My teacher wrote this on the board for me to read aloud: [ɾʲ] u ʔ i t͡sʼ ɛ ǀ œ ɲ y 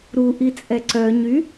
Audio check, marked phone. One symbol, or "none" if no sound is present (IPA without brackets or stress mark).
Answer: ɾ